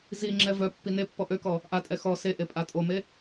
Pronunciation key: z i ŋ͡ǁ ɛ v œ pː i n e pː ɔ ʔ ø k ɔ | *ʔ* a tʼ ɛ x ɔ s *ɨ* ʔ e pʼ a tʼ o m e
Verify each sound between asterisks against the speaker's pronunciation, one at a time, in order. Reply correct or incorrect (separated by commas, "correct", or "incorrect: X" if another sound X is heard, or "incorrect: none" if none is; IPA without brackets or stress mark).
correct, incorrect: e